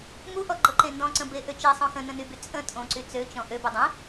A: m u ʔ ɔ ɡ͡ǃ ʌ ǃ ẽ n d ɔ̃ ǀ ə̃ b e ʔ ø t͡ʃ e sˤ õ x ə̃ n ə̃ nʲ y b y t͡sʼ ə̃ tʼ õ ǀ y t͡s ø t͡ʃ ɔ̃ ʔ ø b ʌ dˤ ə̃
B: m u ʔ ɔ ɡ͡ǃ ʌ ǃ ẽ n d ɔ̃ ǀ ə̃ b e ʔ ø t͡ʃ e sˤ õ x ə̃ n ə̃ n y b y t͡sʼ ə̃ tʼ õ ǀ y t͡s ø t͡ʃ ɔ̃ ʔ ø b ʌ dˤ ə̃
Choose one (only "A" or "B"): B